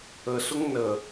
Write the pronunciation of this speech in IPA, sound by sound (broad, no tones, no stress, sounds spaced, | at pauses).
ə s ʊ ŋ n ə